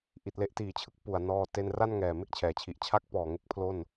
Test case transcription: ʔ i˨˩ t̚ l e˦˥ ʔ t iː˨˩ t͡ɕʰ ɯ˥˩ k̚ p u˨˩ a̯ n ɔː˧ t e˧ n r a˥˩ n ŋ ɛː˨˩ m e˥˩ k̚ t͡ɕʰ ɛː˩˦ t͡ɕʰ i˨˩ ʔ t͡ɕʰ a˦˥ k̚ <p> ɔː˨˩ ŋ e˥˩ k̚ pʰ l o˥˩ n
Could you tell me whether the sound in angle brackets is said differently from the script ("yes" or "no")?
no